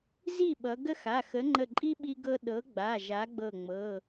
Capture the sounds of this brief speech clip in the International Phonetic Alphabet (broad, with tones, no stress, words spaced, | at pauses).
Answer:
zi˥˩ɓʌ˩˧ ɡə˥xa˩˧˩ xə˨˥ŋ͡ǃə˧˩ǃʼi˥ ɓi˥ɡɤ˥ ɗɤ˨˥ ɡ͡ba˩˧˩ ʒa˨˥ɡ͡bɤ˧˩ŋ͡mɤ˩˧˩